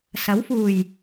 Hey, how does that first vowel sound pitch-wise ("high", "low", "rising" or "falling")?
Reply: rising